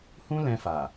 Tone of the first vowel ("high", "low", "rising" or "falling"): high